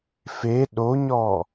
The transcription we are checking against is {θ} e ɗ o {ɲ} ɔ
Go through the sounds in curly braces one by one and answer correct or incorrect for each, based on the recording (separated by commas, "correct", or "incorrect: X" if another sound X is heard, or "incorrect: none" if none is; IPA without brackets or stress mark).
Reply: incorrect: f, correct